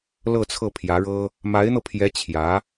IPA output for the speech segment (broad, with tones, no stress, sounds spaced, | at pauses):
l ɤ˥˧ t͡sʰ ɤ˥˩ pʰ j ä˧˥ ɻ ɤ˥ | m a˧˥ ɪ̯ n̪ ɤ˧ pʰ j ɛ˧˥ t͡ɕʰ j ä˧˥